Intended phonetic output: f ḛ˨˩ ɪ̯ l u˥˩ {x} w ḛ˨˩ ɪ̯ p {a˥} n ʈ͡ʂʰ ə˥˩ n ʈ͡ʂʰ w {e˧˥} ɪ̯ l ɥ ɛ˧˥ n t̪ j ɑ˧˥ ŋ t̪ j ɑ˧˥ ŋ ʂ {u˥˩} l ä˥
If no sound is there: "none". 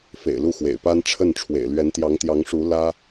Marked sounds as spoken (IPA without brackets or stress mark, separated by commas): x, a˥, ḛ˨˩, u˧˥